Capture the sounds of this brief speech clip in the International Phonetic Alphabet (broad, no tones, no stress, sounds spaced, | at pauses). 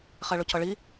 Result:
χ ɛ ɭ ʊ cʰ ʌ ɭ i